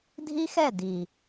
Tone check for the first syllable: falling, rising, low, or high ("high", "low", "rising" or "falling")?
high